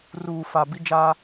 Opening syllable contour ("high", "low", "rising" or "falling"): low